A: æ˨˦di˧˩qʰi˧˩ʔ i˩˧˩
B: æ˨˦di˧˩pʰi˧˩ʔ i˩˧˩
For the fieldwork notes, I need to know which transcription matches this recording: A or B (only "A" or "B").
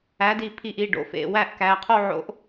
B